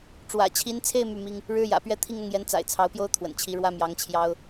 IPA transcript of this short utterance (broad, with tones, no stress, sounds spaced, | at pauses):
ʈ͡ʂ w ä̰˨˩ t͡ɕʰ i˧˥ n t͡sʰ e˥˧ ɪ̯ m y˥˩ m i˥ ŋ | ɻ ɻ̩˥ j ä̰˨˩ p ɥ ɛ˥˧ t̪ʰ i˥˧ ŋ ʊ˥˩ ŋ j ɛ˧˥ n t͡s a̰˨˩ ɪ̯ t͡sʰ ɑ˧˥ ʊ̯ p j o˥ ʊ̯ t̪ʰ w ə̰˨˩ n t͡ɕʰ i˧˥ ɻ w ä˥ m j ɑ˧˥ ŋ t͡ɕʰ j ɑ˥ ʊ̯